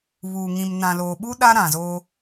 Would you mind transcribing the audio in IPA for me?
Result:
β uː˨ ŋ ĩ˨ m n ã˨ l oː˨ ɓ u˦ ɗ a˦ ɾ ã˨ z oː˦

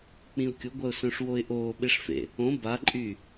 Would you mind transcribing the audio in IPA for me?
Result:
k͡p ĩ ʊ̯ kʲ ʊ ɡʷ ɐ ʊ̯ s œ̃ ʂ w o ɪ̯ ʔ oː ɓ e ʂ f ḛ | õ b a ǃʼ y

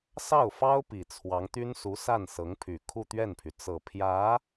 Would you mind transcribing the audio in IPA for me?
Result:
s ɑ˥˩ ʊ̯ f ɑ˥ ʊ̯ p i˨˩ t͡sʰ w ɑ˧˥ ŋ t̪ y˥ n s u˧˥ s a˥˩ n s ɤ˧˥ ŋ pʰ y˨˩ kʰ u˥˧ t̪ ɥ ɛ˥˩ n pʰ y˩ t͡s ɤ˨˩ pʰ j ä˧˥

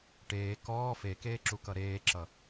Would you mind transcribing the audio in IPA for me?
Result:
ʈ eː k ɔː f e k eː ǁ u k ʌ ɾ eː ǁ ʌ

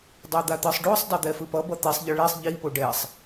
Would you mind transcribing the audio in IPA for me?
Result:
dˤ o d̪ a t̪ ɯ sˤ ɖ o sˤ dˤ ɛ d̪ ɛ f ɯ p ʌ b ʌ t̪ i sˤ ʎ ɯ ɭ i sˤ ʎ i p o ɖ ɛ sˤ

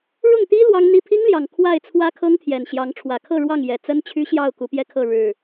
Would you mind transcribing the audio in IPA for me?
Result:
ɻ ʊ˥˨ ŋ t̪ i˦ l w ɑ˦ ŋ n̪ i˦ pʰ i˦ ŋ l j ɑ˨˩ ŋ kʰ w a˥˨ ɪ̯ t͡sʰ w ä˦ kʰ ɤ˦ ŋ t̪ʰ j ɛ˨˩ n ɕ j ɑ˨˦ ŋ ʈ͡ʂʰ w ä˨˩ kʰ ɤ˥˨ ɻ w ɑ˥˨ ŋ j ɛ˨˩ t͡s ə˦ n t͡ɕʰ y˦ ɕ j ɑ˥˨ ʊ̯ k u˨˦ p j ɛ˦ kʰ ɤ˥˨ ɻ ɻ̩˨˩

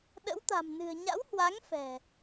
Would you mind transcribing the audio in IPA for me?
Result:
ɗ ə̰˧˥ w t̪ a̤˨˩ m n ɨ̤˨˩ ə̯ ɲ a̰˧˥ w h w a˨˦ ŋ f ɛ̤˨˩

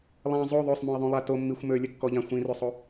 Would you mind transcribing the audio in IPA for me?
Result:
lˠ ã zˤ o ðˤ ø sˤ m ũ ɪ̯ ðˤ ũ lˠ a t o mː i xʷ m ø lʲ ə kː ɔ ʎ ã xʷ ĩ r ø sˤ o

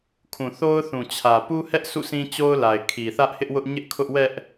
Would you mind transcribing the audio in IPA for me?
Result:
kʰ ũ˨ θ o˦ ʊ̯ θ ũ˨ t͡ɕʰ ä˨ p u˦ h ɛ˦ ʔ sʰ ṵ˦˨ s ĩ˦ t͡ɕ o˦ ʊ̯ l a˨ ɪ̯ kʰ i˨ θ ä˦ ʔ h ɪ˦ ʔ w ʊ˦ ʔ ɲ ɪ˦ ʔ kʰ ʊ˦ ʔ w ɛ˦ ʔ

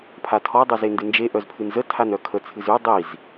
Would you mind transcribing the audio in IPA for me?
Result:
pʰ a tʰ ɔ dˤ u z e n d ɨ n d͡ʒ e ʔ œ z pʰ ɨ n z ə tʰ a n œ kʰ ə t͡sʰ ɨ z ʉ dˤ i z

